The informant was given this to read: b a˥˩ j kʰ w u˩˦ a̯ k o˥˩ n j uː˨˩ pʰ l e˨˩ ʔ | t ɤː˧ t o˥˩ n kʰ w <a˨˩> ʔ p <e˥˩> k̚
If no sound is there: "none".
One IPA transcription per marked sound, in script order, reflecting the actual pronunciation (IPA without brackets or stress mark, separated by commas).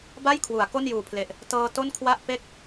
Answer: a˥˩, e˥˩